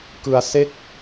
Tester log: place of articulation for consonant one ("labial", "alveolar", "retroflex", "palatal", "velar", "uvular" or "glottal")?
velar